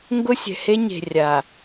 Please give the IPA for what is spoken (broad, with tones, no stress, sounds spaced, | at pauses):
ŋ ɡ ʊ˦ sʲ ɛ̤˨ h e˦ ɲ e̤˨ rʲ a˨